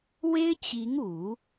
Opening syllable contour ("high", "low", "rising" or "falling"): high